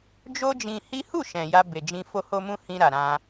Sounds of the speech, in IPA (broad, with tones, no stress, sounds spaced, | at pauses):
d͡ʒ o˦ d͡ʒ ĩ˧ h i˦ h u˦˨ ʃ ɛ̃˨ j a˧ b e˨ d͡ʒ ĩ˧ f o˧ h o˧ m ũ˧ h ĩ˧ ɾ a˨ ɾ ã˧